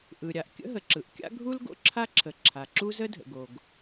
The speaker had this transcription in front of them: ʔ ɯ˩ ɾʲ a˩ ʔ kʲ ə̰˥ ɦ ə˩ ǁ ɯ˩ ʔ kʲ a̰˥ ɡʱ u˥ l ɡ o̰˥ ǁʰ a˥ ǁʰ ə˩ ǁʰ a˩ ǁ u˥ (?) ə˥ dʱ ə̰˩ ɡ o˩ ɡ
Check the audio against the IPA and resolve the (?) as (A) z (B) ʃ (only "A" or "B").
A